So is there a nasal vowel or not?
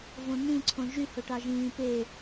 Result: yes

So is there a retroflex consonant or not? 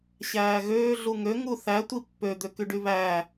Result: yes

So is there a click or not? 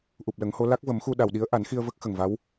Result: no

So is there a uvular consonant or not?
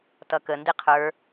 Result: yes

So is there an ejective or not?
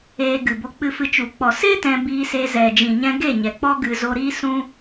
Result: no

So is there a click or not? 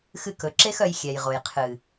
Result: yes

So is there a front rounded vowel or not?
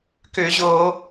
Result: yes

